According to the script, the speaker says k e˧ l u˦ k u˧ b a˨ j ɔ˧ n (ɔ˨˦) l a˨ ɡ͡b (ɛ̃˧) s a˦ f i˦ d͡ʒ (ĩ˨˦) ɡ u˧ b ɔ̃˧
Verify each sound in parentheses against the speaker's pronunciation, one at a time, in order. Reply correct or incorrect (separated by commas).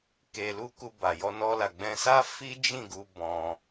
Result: incorrect, correct, incorrect